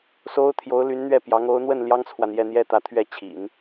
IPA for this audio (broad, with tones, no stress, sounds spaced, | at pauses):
s o˥ ʊ̯ t̪ʰ j o˧˥ ʊ̯ l y˧˥ n n̪ ɥ ɛ˥˩ p j ɑ˧˥ ŋ o˧˥ ʊ̯ n̪ w ə˥˩ n l j ɑ˥ ŋ t͡sʰ w a˨ n j ɛ˥˩ n̪ j ɛ˥ t̪ ä˧˥ t̪ʰ ɥ ɛ˥˩ t͡ɕʰ ḭ˨˩˦ n